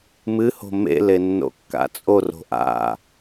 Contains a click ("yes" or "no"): no